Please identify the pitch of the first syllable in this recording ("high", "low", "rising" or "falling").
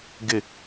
falling